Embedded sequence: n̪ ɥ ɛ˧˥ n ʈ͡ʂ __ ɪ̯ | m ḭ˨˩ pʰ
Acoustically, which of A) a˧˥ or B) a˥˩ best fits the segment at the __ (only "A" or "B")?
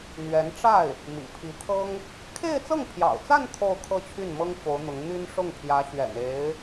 B